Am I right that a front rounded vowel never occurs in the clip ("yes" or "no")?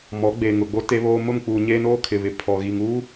yes